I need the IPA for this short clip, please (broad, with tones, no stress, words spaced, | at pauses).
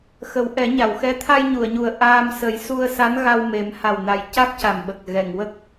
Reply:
xə˨˩˦wʔɛ˨˩˦ɲa˨˩˨wxɛ˧˥ t̪ʰa˧jɲu˨˩˨ə̯ɲu˨˩ə̯ ʔaː˧m sə˨˩˦jsu˧ə̯ sa˧˥nɣa˧wme˨˩˦m ha˨˩wna˨˩j ca˦˥k̚ca˨˩mɓə˨˩k̚ ɣɛ˨˩˨ŋwə˦˥k̚